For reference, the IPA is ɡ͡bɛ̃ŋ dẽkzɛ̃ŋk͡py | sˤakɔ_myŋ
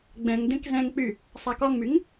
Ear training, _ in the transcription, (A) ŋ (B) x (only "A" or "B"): A